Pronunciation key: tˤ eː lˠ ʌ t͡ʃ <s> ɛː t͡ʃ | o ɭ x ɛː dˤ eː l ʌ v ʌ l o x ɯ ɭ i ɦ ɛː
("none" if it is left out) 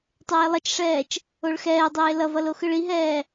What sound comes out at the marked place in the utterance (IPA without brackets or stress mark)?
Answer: ʂ